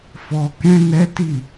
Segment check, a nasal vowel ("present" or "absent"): present